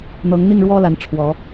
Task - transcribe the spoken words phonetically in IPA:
n̪ ɤ˨˦ ŋ n̪ i˥˨ ŋ ɻ w ɔ˦ l a˨˦ n ʈ͡ʂʰ w ɔ˨˦

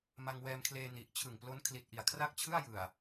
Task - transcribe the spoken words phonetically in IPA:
m a˧ ŋ w ɛː˧ m kʰ l eː˧ n i˨˩ ʔ t͡ɕʰ ɯ˨˩ ŋ p l o˦˥ n kʰ l i˨˩ t̚ ʔ i˨˩ a̯ kʰ r a˥˩ k̚ t͡ɕʰ ɯ˥˩ a̯ j ɯ˨˩ a̯

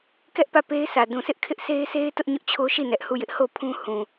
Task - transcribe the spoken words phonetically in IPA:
k ɛ˦ ʔ p ä˦˨ p e˦ ɪ̯ sʰ ä˨ d ũ˨ sʰ ɪ˦ ʔ kʰ ɪ˦ ʔ sʰ e˦ ɪ̯ s e˦ ɪ̯ t ʊ˦ ʔ ɲ ʊ˦ ʔ t͡ɕʰ o˦ ʃ i˦˨ n ɛ˦ ʔ h u˦˨ j ɪ˦ ʔ h o˦˨ pʰ ũ˦ h ũ˨

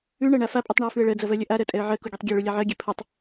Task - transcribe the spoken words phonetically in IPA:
ʉ ɳ ɜ ɳ a f a pʼ u tˤ ɳ a ə̯ f ʉ ə̯ ɭ ɜ d͡z ɐ v ɜ lʲ ɐ ʔ a ɾ ɜ tʼ ɛ ə̯ ʕ ɜ k u ɡʲ ɛ tˤ ɡʲ ɛ ɭ u lʲ a ʕ ɜ ɡʲ ɛ pʰ ɐ tˤ

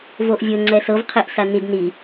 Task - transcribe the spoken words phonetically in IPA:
v o ʔ vʲ o ŋ͡ǀ ɛ s ɤ v qʰ e ʔ s a n i d n i

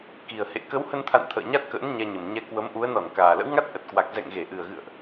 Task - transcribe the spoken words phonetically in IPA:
k i˨˩ ə̯ h ḛ˧˨ k ə˨˦ w h ə˧ n t̪ʰ a̰˧˨ n t̪ʰ ə̰ː˧˨ ɲ a˦˥ t̚ k ə̰ː˧˥ n ɲ ɛ˧ ɲ ə˨˩ m ɲ ɛ˧ k w ə˨˦ m ʔ u˨˦ ə̯ n ɔ˧˩ n k aː˨˩ l ə̰˧˥ w ŋ a˦˥ t̚ ʔ ə˨˩ t̚ k w a˨˩ k̚ z ɛ̰˧˨ ŋ ɣ e˧˩ ʔ ɨ˨˩ ə̯ ɣ ɨ̰˧˨ ə̯ ʔ

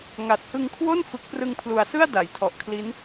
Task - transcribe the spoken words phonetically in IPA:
ŋ a˨˩ t̚ h ɯ˧ ŋ kʰ w o˥˩ n f ɯ˦˥ k̚ p r ɯ˧ ŋ pʰ l u˨˩ a̯ s ɯ˥˩ a̯ d a˩˦ j tʰ ɔ˨˩ ʔ kʰ l i˦˥ n

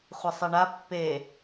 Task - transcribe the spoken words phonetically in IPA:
χʷ ə sˤ e ɳ a pː e

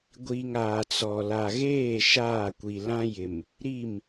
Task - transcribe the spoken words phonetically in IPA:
ɡʷ i˨ ŋ aː˨ t͡s ɔ˨ l a˨ ɣ eː˦˨ ʃ aː˦˨ kʷ i˨ l ã˦ j ɪ˨ m | ɾ i˦˨ m

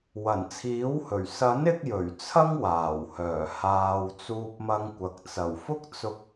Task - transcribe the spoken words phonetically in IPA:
w ɐ˨˩ n t͡sʰ iː˨˥ w h ɵ˨˩ ɥ s ɐ˨˥ n ɪ˧ k̚ j ɵ˨˩ ɥ t͡sʰ ɐ˥ ŋ w aː˨˩ w h œː˨˩ h aː˨ w t͡s uː˧ p̚ m ɐ˧ ŋ kʷ ɐ˨ k̚ t͡s ɐ˨˩ w f ʊ˥ k̚ t͡s ʊ˧ k̚

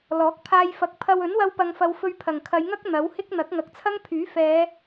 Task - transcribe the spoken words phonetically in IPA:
l ɔː˨˥ k̚ pʰ aː˧ j f ɐ˨˥ k̚ pʰ ɐ˧ w ɵ˨˥ n w ɐ˧ w p ɐ˨ ŋ f ɐ˨ w f ɵ˧ ɥ pʰ ɐ˨˩ ŋ kʰ ɐ˨˧ j ŋ ɐ˥ k̚ n̪ ɐ˨˥ w h ɪ˥ k̚ n̪ ɐ˨˥ k̚ ŋ ɐ˨˥ k̚ t͡sʰ ɐ˥ ŋ pʰ yː˨˥ f ɛː˨˧

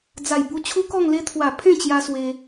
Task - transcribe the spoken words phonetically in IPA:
d͡z a˨˩ j b u˧ t͡ɕʰ u˦ k ɔ˥˧ ŋ l e˦ t̪ʰ w a˨˩ pʰ ẽ˥˧ t͡ɕ j a˧ s w e˧

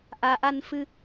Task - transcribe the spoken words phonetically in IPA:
ʔ a˩ ʔ a˨ n f ɨ˨

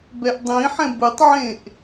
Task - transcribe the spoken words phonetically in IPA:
b ɛ ʔ dˤ ĩ ħ ɛ̃ b ɯ tˤ ʕ ẽ ʔ

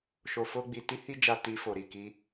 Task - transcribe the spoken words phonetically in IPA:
ʃ o˧ f o˦ ɡ͡b i˧ t i˦ h i˦ d͡ʒ a˧ t i˧ f o˨ ɾ i˨ k i˧

